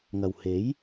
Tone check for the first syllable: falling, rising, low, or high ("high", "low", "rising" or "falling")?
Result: low